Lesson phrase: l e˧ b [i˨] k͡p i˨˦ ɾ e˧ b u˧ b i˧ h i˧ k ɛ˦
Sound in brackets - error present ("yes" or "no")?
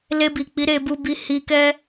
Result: no